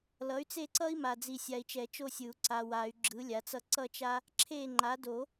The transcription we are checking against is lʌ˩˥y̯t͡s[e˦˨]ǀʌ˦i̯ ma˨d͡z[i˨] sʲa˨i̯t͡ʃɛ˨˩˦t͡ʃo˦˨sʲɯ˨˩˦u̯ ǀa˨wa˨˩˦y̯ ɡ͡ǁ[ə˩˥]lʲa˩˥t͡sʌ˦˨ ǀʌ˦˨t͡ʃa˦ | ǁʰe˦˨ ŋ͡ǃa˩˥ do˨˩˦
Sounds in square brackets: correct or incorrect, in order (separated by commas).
correct, correct, incorrect